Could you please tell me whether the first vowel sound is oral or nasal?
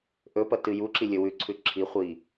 oral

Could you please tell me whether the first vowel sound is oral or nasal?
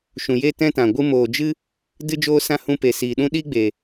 nasal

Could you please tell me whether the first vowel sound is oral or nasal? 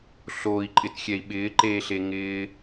oral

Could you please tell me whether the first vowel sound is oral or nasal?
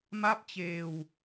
oral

